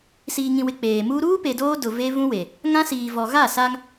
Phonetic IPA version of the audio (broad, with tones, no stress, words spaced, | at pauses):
siː˨ŋĩ˨wɪ˨ k͡peː˨ muː˦ ɾuː˦pe˨ doː˦dʊ˨ ve˦ vũ˦we˨ | ŋã˦siː˨vɔ˨ ɣa˦˨sa˦ŋ